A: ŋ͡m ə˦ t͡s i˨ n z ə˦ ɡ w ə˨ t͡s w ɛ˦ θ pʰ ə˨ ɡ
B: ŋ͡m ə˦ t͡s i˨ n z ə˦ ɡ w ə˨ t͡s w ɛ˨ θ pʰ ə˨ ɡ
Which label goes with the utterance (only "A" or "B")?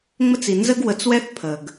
A